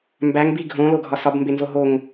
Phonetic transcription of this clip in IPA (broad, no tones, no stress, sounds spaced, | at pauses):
m b æ ŋ b i ɡʱ õ l o ɡʱ ɒ s ɒ b m b e n z o ɦ o ŋ